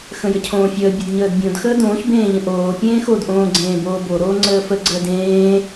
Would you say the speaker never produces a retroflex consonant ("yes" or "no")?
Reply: yes